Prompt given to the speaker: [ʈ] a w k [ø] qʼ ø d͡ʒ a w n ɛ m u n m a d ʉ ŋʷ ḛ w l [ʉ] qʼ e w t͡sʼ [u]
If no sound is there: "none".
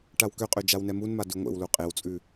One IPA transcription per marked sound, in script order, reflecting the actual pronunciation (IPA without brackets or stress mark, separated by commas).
ʈ, ø, u, ʉ